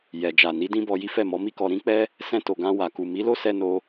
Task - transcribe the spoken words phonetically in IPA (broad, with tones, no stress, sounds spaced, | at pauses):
j ɛ˨ d͡ʒ a˨ n i˨˦ d ĩ˦ b ɔ˧ j i˦ f ɛ˦˨ m ɔ˨˦ m i˦ k ɔ˧ ɾ ĩ˦ k͡p ɛ˦ | s ɛ̃˧ t o˨ ɡ ã˧ w a˨ k u˨ m i˨˦ l o˦ s ɛ˧ n o˧